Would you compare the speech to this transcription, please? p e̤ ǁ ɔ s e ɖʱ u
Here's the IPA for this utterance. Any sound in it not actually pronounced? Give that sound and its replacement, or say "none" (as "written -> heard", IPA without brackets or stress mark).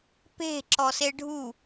none